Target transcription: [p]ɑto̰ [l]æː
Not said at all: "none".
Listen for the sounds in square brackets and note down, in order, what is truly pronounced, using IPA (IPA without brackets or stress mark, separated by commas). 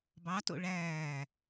b, ɭ